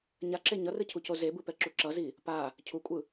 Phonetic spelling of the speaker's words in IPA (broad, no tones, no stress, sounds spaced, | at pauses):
ɲ a ǁ e ɲ ʌ r ɯ cʰ u c o z e b ɯ p ɛ ǁ u ǁ ʌ z i | p a | cʰ u kʷʼ ɯ